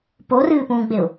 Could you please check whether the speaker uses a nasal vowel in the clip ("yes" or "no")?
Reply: yes